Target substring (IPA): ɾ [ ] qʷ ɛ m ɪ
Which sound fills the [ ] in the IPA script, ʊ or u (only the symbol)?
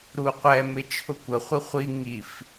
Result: u